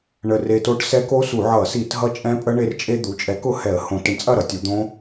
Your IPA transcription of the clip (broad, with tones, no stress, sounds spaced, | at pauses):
ɳ ə˧ r e˧ t o˦˥ ʈ s ɛ˦˥ k o˦˥ s u˧˩˧ ʕ ʌ˧˩˧ s i˧˩˧ t ɦ ʌ˦˥ t͡ʃʼ ɛ̃˦˥ pʼ ə˦˥ ɳ e˧ r t͡ʃʼ e˧ d̪ u˩˥ t͡ʃʼ ɛ˩˥ k ʊ˩˥ h ɛ˧˩˧ ə̯ h õ˧˩˧ t ə˧ ɳ t͡sʼ ɐ˥˩ ɾ ʌ˩˥ tʲ u˩˧ d̪ õ˦˥